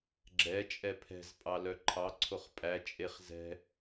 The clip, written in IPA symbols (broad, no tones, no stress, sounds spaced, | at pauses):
ɡ͡ǁ ɛ t͡ʃʼ ɛ pʰ ɛ̤ z pʼ ɑ l œ ǃʰ ɑ ǀʰ o χ pʼ æ t͡ʃʼ e χ z ɛ̤